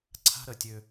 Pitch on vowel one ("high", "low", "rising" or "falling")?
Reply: high